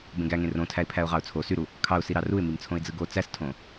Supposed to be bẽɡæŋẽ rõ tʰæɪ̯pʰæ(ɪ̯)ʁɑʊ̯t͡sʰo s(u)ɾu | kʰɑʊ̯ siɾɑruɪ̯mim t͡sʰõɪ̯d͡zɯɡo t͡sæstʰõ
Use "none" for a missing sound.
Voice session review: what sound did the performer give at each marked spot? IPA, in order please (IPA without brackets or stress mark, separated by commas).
ʊ̯, y